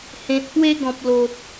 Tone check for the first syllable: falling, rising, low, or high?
low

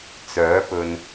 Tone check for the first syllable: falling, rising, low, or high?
rising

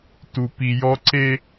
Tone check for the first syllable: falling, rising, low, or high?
low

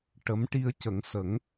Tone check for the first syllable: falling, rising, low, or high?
rising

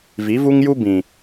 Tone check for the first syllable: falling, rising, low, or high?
rising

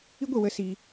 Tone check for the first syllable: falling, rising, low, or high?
high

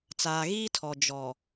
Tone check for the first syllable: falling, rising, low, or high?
low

